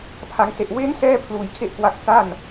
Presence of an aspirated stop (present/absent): present